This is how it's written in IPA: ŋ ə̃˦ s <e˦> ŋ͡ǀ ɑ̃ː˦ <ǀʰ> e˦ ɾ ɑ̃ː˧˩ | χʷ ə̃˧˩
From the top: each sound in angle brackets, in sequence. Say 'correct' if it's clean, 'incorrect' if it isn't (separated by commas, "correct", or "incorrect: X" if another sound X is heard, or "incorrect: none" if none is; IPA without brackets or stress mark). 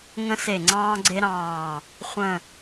incorrect: e˧˩, incorrect: ɡ͡ǀ